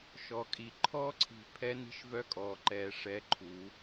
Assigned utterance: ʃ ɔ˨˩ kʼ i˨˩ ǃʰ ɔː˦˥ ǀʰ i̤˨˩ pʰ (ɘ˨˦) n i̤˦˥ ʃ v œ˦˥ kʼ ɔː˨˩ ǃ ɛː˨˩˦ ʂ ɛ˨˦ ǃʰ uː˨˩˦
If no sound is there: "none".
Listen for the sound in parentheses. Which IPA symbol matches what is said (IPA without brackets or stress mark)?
ɛ˨˦